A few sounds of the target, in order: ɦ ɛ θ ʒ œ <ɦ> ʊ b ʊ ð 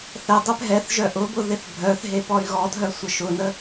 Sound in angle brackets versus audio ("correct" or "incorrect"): incorrect